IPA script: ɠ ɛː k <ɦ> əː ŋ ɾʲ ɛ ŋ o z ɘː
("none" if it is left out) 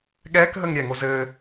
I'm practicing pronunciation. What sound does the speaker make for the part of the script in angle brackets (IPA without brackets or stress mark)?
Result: ɦ